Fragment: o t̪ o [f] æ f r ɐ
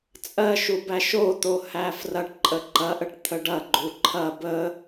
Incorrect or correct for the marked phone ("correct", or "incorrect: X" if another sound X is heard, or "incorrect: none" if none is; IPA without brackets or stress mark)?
incorrect: h